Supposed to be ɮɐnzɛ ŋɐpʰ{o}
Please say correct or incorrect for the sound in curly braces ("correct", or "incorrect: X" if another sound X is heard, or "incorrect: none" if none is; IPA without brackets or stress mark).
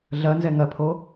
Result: correct